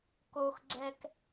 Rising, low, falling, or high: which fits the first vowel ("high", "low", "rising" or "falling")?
low